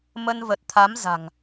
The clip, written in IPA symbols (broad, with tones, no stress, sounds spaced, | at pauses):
m ə˧ n v ə˨˩ t̚ t̪ʰ a˨˦ m z a̤˨˩ ŋ